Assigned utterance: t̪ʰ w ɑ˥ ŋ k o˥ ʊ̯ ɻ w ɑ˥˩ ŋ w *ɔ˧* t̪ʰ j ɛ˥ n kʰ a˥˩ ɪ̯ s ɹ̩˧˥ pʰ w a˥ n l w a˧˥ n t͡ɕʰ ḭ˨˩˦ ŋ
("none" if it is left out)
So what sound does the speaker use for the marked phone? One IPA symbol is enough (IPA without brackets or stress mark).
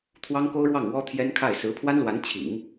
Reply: ɔ˥